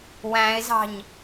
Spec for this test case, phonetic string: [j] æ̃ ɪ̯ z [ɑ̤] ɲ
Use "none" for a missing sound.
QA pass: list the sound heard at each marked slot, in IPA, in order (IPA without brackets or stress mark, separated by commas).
w, ɑ̤